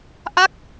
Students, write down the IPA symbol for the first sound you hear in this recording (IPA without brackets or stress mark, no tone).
ʔ